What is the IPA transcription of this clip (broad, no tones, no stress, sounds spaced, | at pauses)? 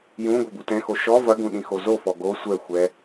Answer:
j ũ ɡʷ ɛ b u t ɛ̃ x o ʃ ɔ v ɐ ɡ ũ ɗ ĩ x o z o f ɔ ɡ o sʷ ɛ xʷ ɛ